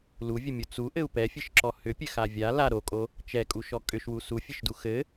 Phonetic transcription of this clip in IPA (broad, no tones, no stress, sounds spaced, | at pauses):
l u vʲ ɘ mʲ u t͡s u ʔ ɘ u̯ p ɛ fʲ ɘ ʃ ǁ ɔ h ʏ pʲ ɘ x a vʲ a l a ɾ o kʼ o | t͡ʃ ɛ kʼ u ʃ ɔ kʼ ʏ ʃ w u s u fʲ ɘ ʃ d u x ɘ